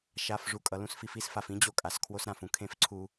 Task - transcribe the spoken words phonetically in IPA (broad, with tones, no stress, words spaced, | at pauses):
ʃa˨f ʐu˨kʼʌ˨lũ˦sfi˧f i˦sfa˨fĩ˦d͡ʑo˧ kʼa˨skʰwo˦sɾã˦˨f ũ˦kʰẽ˦˨fǀʰu˧